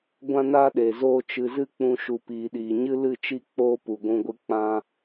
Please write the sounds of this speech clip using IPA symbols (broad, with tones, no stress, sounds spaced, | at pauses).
ɡʷ ã˦ n aː˦ ɗ eː˨ z oː˦ t͡ʃ ɨ˧ z ɨ˦ k͡p ũ˧ ʃ u˨ p iː˨ ɗ iː˨ ɲ ɨ˦ l ɨ˦˨ t͡ʃ i˦˨ k͡p oː˧ p u˨ ɡʷ ũ˧ ɡʷ ɨ˧ k͡p ã˧